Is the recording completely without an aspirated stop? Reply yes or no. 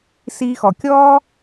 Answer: yes